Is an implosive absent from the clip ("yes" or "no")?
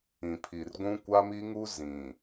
yes